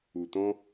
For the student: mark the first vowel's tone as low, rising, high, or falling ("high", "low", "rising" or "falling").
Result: low